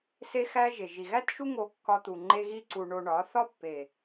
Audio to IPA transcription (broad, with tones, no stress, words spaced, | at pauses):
se˦xæ˦ʒe˨ ʒi˨ɣæ˦tʃu˦ ŋo˦kːɒ˦t̪u˧ ŋ͡ǃe˦ɣi˦ǀu˧ ɳo˧ ɳɒ˨˦ θɒ˦pːe˨